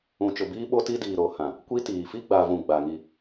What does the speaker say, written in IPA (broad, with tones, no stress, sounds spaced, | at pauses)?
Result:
ũ˨ t͡ʃ ʊ˨ b iː˦ ɓ o˦ t i˦ d iː˨ ɾ o˨˦ h ã˨ | kʷ i˦ t iː˨ f i˦ ɡ͡b a˨ v ũ˨ ɡ͡b a˨ ŋ i˦˨